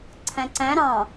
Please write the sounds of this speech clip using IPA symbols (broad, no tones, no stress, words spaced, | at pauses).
ǀʰæ̃ǀæ̃ ɾɑ̃